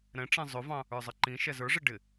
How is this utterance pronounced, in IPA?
ɾ ɛ̃ ʈ͡ʂ ɛ̃ zˤ ʊ v ɑ̃ | ə˞ zˤ ə ǃ ĩ ʃ ɛ z ə˞ ʐ ɪ ɖ ɪ

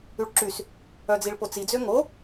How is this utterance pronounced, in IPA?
y ɭ ǁ y s | œ d͡z i ɭ p o t͡s i d͡z ø ŋ o

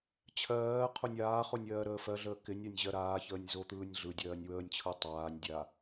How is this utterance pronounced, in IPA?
t͡ɕʰ ɜː qʰ o nʲ aː χ o nʲ ɜː ɾ əː f ɜ ɮ əː k ɪ nʲ a nʲ ʑ ɜ ɾ aː ç əː nʲ z o t̪ ɯː nʲ ɮ ɯ dʲ ɜː nʲ w əː nʲ t͡ɕʰ ɯ tˤ aː nʲ dʲ a

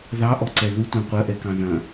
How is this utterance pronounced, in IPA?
ð ɑ ʔ ɔ ǀ ɛ ð u tʷ ɑ̃ qʷ ɐ ʔ ɛ k ɑ̃ ð ɐ̃

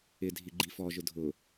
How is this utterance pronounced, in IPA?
ɪ dʱ i ɡ͡ǃ i f ɔ ʒ ʊ dʱ ʊ

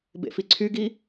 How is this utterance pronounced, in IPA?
b ḛ f i ǀʰ y ɡ i

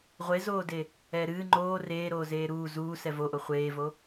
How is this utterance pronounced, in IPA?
ʁʷ e z oː d e | ɛː ɾ ɨː ŋ͡ǃ oː r eː ɾ oː z eː ɾ uː z uː s ɛ v o ʔ o χʷ eː v o

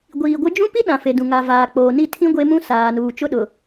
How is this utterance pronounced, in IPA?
ɡʷ iː˨ ɡʷ ɪ˦ d͡ʒ ũ˦ p i˦ ɗ ã˨ f e˨ d ũ˨ ŋ a˨ v aː˨ k͡p oː˨ n i˦˨ tʰ ĩ˦ ɡʷ e˦ m ũ˦ s aː˨ n uː˨ t͡ʃ ʊ˦ ɗ ʊ˨

